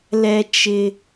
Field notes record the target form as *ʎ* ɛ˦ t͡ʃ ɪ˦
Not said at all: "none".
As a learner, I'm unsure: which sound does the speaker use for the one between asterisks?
l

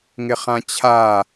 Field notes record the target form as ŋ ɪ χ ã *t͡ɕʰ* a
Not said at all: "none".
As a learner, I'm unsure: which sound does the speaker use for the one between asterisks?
t͡ɕʰ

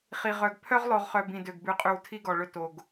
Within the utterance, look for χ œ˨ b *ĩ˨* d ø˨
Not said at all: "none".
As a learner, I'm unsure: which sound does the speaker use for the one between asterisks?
ĩ˨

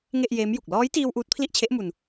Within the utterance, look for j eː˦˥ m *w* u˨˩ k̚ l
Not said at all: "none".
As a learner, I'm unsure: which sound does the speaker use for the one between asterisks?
j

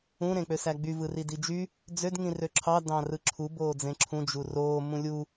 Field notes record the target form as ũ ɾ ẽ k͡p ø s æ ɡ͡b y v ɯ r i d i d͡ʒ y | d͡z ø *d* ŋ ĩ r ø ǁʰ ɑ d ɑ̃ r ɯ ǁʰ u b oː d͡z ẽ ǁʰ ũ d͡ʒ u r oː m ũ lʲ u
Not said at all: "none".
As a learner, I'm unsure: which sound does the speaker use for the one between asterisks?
d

